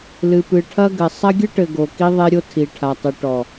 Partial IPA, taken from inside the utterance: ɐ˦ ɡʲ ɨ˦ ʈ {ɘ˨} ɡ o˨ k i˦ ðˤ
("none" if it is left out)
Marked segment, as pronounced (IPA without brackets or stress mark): ɘ˨